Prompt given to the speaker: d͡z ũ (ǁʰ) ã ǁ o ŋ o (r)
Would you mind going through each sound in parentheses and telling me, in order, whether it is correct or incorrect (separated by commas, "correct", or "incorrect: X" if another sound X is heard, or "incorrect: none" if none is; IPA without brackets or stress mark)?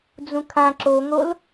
incorrect: kʰ, incorrect: l